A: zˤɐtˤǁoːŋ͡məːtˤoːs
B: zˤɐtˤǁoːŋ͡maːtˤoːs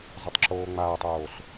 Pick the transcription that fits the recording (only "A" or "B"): B